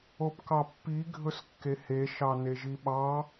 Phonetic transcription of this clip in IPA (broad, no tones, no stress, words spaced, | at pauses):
opkɑpːi ɡʱɵskːehe ʃɑneʒiɓɑ